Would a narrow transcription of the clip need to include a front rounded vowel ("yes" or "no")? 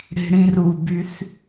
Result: yes